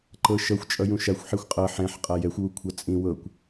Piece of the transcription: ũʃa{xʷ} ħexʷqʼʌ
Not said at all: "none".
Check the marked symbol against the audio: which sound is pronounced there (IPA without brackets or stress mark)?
xʷ